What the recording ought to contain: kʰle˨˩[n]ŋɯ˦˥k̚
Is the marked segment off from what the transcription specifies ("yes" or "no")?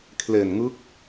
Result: no